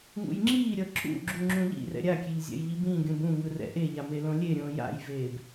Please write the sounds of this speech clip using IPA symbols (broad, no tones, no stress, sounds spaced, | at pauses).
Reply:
ŋ ṵ j ŋ͡ǁ iː ɾʲ ʌ ǁ ṵ ɡ͡ǁ u ŋ͡ǁ ũ ʎ ḭ r ɛ̰ ɾʲ a kʲ e ʎ zʲ ɛ̰ j ʎ i b ĩː ɡʲ ũ b ũ ŋ ɯ r ɛ̰ ʔ e ʎ a m e l õ lʲ e ɾʲ õː j a̰ j v eː b